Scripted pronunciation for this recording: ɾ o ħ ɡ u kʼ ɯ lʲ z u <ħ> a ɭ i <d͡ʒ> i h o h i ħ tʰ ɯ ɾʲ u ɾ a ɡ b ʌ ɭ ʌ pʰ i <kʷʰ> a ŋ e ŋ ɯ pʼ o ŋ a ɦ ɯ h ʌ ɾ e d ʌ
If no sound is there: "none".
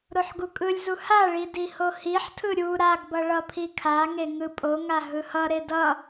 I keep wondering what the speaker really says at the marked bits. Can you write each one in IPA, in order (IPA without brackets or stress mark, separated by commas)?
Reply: h, d, kʰ